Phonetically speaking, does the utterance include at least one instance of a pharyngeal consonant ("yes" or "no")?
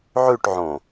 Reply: yes